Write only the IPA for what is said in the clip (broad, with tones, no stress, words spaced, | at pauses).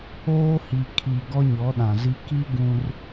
oː˦hi˨kʰi˨ ɡɔ˦ɲɔ˨˦ɗã˨zi˦ ki˦ ɡũ˦r